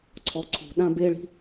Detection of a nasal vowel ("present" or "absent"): present